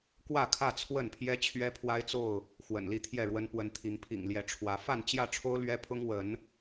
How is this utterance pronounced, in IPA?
kwä˥˨kʰä˥˨ t͡sʰwə˥˨npʰjɛ˦ t͡ɕʰɥɛ˦pʰwa˦ɪ̯t͡so˥˨ʊ̯ | xwə̰˨˩nli˥˨t̪ʰjɛ˥˨ɻwə˦n pwə˨˦nt̪ʰi˨˦ŋpʰḭ˨˩ŋ ljɛ˨˦ʈ͡ʂʰwä˨˦ fa˥˨nt͡ɕjä˥˨ʈ͡ʂʰo˦ʊ̯ lɥɛ˦pʰʊ˦ŋwə˨˦n

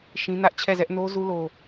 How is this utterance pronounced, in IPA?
ʃĩ˦nä˦ʔ t͡ɕʰɛ˦˨zɛ˦ʔ no˦zu˦ lo˦

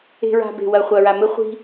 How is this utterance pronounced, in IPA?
e̤˨ɹa̤˨ be̤˨ wɐ˨χʷɐ˨ɹa˨ mɘ˦χʷi̤˦

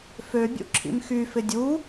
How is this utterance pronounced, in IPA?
føbʲṵ ǁʰḭmxyfɪ dʲu

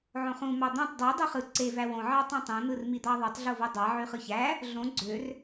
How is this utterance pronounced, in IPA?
ʕõχũ mɑd̪õtˤ dˤi dˤuχɯ ǀe væwõ ʕɑtˤõtˤõ n̪ɯrmid̪ɑðˤotˤ ɮovodˤɑ ʕyχɯçæ | ɮõ ɡ͡ǀør

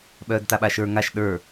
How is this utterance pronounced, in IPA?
ɓœːdtaɓaʃə˞ ŋaʃ ɗə˞

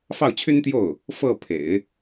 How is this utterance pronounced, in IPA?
fɑ˥˩ʊ̯t͡ɕʰy˥nt̪jo˥˩ʊ̯ | fɤ˥˩pʰḛ˨˩˦ɪ̯

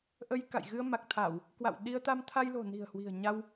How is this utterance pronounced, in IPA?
ʔə˧jka̰˧˨j ɣɨ˧ə̯ma˨˩k̚t̪ʰa˧˩˨w | kwa̰˧˨wɗi˧ə̯t̪a˧m t̪ʰa˧jlo̤˨˩ni̤˨˩ə̯ hwi̤˨˩ə̯ɲa˧w

